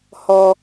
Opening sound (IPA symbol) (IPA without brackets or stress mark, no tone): h